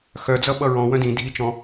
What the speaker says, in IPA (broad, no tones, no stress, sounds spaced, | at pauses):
x œ d͡z ʌ ɓ ʌ ɹ ɔ̃ w œ̃ d ĩ dʱ i t͡ʃ ɔ̃